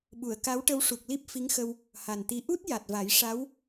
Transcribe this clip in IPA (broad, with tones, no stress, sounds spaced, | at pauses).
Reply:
ɓ u˨˩˨ ə̯ k a˧˥ w ʈ ə˧ w ʂ u˨˩ k̚ l i˦˥ p̚ f i˧˥ ŋ x ə˧ w | h a˨˩ n t̪ i˧˥ ʔ u˦˥ t̚ j a˨˩ t̚ v a˨˩˦ j ʂ a˧˥ w